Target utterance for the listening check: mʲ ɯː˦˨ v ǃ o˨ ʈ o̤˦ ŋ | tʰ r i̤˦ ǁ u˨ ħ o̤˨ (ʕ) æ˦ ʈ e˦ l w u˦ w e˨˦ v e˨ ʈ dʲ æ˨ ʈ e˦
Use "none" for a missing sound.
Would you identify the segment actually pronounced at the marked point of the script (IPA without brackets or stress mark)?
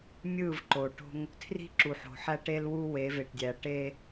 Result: ħ